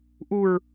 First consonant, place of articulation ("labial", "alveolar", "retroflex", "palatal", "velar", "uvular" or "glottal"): glottal